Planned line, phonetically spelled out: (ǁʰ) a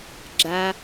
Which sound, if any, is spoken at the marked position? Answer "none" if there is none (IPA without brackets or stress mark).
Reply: ɡ͡ǁ